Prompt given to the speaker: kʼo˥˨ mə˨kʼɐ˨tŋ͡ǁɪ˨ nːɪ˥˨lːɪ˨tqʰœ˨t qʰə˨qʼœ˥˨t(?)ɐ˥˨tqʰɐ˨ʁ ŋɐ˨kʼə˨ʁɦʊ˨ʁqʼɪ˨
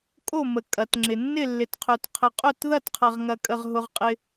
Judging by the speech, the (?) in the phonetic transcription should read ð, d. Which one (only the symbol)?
ð